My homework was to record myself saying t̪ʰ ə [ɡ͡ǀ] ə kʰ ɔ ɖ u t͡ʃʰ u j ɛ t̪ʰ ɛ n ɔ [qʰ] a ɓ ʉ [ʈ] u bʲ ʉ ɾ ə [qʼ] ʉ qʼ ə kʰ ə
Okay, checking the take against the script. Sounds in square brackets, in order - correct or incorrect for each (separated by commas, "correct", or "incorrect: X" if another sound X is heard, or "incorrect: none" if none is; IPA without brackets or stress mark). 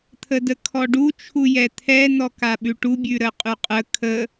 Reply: incorrect: d, incorrect: k, correct, correct